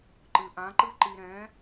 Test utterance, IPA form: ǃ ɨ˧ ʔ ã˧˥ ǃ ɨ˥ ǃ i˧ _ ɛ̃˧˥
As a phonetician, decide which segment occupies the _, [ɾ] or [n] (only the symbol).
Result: ɾ